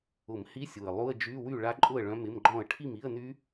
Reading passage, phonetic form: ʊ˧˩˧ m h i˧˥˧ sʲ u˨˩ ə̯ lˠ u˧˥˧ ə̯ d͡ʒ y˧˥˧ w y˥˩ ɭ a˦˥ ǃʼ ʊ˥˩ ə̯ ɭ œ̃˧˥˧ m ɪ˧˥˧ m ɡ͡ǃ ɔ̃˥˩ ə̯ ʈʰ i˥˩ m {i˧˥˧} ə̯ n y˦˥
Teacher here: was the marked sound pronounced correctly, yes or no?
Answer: yes